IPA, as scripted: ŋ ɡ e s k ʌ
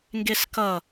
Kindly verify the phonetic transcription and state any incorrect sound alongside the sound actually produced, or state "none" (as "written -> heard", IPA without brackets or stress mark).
none